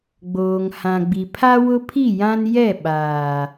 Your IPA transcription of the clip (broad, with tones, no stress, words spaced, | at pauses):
ɡ͡boː˨ŋhã˨ɡ͡bi˨ pʰa˦ wʊ˦pʰi˦˨jã˦n jɛ˦˨ɓaː˨